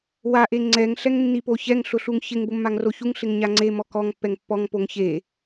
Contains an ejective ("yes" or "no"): no